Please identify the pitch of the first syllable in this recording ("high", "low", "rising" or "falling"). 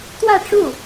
falling